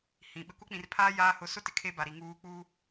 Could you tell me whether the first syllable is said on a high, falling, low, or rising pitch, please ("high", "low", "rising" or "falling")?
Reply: low